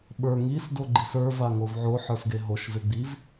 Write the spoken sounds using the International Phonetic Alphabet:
ɓ ə˞ ŋ i s d o ɡ͡ǃ i s ə˞ v a ŋ o v ʕ o ħ ə˞ s ɡ e ɦ o ʃ v e ɡ͡b i v

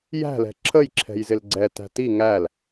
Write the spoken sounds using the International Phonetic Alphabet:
j æ̤ l ɛ̤ ǁʰ ə j ǁʰ ɛ̤ j z ɪ l ɡ͡ǀ ɛ t æ̤ t i ŋ æ l

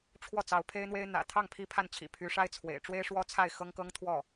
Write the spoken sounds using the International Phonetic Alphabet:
ʈ͡ʂʰ w ɔ˥˩ t͡s ɑ˧˥ ʊ̯ pʰ e˥ ɪ̯ n̪ w e˥ ɪ̯ n̪ ä̰˨˩ t̪ʰ ɑ˥˩ ŋ pʰ i˥ pʰ a˥˩ n t͡ɕʰ ḭ˨˩ pʰ y˧˥ ʂ a˥ ɪ̯ t͡sʰ w ḛ˨˩ ɪ̯ ʈ͡ʂ w e˥ ɪ̯ ʂ w ɔ˥ t͡sʰ a˥˩ ɪ̯ x ɤ˥ ŋ k ɤ˥ ŋ t̪ʰ w ɔ˥˩

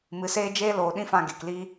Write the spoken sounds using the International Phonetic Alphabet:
m ɨ˨˦ s eː˦ d͡ʒ eː˦ l oː˨ ɗ ĩ˦ f ã˧ ɡ e˨ k l iː˦

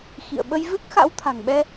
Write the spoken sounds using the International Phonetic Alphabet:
x ḭ˧˨ ə̯ ɓ ə˧ j v ɨ˦˥ k̚ x a̰˧˥ w t̪ʰ a̤˨˩ ŋ ɓ ɛ˧

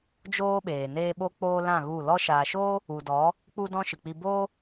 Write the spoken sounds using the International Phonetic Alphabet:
d͡ʒ oː˦ ɓ eː˨ n eː˦ ɓ o˦ k͡p oː˦ l ã˦˨ ɣ u˦˨ l ɔ˧ ʃ aː˨ ʃ oː˦ | u˨ d ɔ˨˦ | k͡p u˦ d ɔ̃˦ ʃ ɨ˨ k͡p i˧ b oː˦

